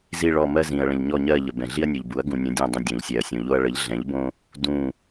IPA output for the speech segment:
zi˦˨ɭɔ˦˨ mɜ˦zĩ˨ɐ̯ ɭə̃˨ʎɲɔ˦˨ɲɜ˦˨ ʎə˨bɛ̃˨ ɮi˦ɐ̯nʲu˨ʎbu˩˥ɐ̯ ɡũ˨nʲə̃˩˥ dʲɔ̃˦˨dˤə̃˦˨ dʲõ˨ʎsʲɛ˨ɐ̯sʲõ˨ʎo˦ɐ̯ ɭə˩˥ʎɮɛ̃˩˥ʎbõ˦ | dũ˦˨

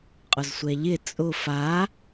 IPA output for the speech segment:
qʼʊzsʷɛʎɪ t͡sʼʊ fa

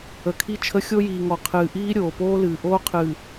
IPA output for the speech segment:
ə˨kʰi˦t͡ʃʰə˦ xʲo˦jiː˨ŋɔ˨ qʰɨː˨ʔiː˦ ɾʲoː˨poː˦lɨː˨ ʔoː˦qʰɨ˨

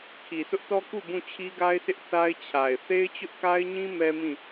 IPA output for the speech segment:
kʰi˨sʊ˦ʔtɔ˦ ku˦˨ bũ˦˨t͡ɕʰi˦ɡa˦ɪ̯sɪ˦ʔ θa˦ɪ̯t͡ɕʰa˨ɪ̯ θe˦ɪ̯t͡ɕʊ˦ʔka˦ɪ̯ɲĩ˦ mɛ˦mĩ˦˨

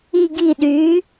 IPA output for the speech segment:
i˧˩ ɡi˧˩ɗyː˩˥

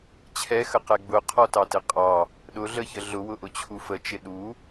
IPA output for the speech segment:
t͡ɕʰɛxəqɛ ɡ͡bʊqʰɔtɑtɪ qʼɑ | ɗʊɮəçə ɮʊwʊʔʊt͡ɕʰu fət͡ʃɪ ɗu

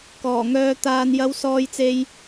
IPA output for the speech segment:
kɔː˨˩ŋœː˧ t̪aː˨njɐ˨˧wsɔː˨jt͡se˨j

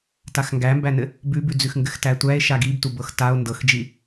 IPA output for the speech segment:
taxŋɡæmbænɘ | bʉbʉd͡zʉxŋɡɘx tætʷæe̯ ʃaɡibtu bɤxtao̯ ndɤxd͡ʒi

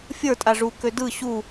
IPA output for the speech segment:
fʲə˞ tʼaʐu kødɯ ɕu

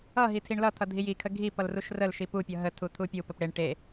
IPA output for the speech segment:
ʌɦi tʰiɳlʌt̪ʰʌ dʱijikʰə ɡʱi pʌlruʃrəlʃi pupʲʌ ɦətʰu t̪ʰupʲupəp ɽeɳ ʈe

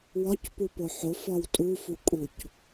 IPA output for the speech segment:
wɒcpupo ħofɒw tʼufukʼuc

